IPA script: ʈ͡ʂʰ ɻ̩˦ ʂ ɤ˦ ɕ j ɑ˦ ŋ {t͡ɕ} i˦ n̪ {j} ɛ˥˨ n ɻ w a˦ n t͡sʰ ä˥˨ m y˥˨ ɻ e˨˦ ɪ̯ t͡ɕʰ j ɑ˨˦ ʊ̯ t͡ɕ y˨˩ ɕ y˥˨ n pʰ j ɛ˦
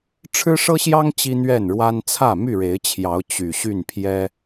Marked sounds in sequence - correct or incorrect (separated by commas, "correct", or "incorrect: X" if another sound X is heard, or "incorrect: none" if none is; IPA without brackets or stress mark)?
correct, incorrect: ɥ